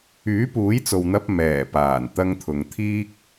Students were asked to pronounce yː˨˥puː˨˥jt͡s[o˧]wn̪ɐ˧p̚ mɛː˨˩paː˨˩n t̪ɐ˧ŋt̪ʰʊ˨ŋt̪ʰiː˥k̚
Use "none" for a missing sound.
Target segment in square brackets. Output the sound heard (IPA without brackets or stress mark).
o˨